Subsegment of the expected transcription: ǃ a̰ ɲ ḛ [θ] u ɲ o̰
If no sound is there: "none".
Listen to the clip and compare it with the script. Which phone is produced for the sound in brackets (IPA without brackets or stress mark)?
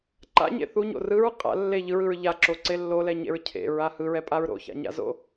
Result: θ